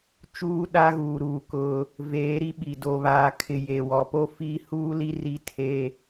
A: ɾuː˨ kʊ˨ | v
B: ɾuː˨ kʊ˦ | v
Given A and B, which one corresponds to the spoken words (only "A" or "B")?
B